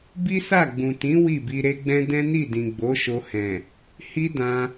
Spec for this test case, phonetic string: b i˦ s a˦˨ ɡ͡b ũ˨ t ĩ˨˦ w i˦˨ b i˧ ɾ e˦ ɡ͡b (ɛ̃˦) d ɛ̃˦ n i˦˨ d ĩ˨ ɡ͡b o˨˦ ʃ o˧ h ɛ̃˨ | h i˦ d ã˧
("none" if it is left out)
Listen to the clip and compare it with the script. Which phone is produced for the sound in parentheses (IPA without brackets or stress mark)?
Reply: ɛ̃˦